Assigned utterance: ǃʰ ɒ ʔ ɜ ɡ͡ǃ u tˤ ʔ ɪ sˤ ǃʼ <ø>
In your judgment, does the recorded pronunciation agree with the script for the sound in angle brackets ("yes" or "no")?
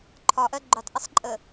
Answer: no